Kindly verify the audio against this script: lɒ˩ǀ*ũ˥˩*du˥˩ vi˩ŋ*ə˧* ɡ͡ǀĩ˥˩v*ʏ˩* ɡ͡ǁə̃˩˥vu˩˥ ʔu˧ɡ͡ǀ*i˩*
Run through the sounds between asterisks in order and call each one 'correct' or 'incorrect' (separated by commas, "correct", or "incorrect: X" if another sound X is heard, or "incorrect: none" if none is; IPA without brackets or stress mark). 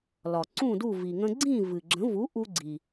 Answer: correct, incorrect: ə̃˧, incorrect: ɨ˩, correct